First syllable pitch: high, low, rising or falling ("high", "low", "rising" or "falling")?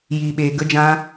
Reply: low